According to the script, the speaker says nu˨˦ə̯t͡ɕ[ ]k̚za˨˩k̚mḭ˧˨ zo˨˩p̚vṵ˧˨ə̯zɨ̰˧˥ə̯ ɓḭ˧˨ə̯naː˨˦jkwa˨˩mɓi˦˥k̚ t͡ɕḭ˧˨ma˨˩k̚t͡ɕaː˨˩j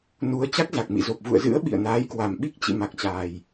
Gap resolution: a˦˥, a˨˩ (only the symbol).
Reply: a˦˥